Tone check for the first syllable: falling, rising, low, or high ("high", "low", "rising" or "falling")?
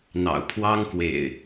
low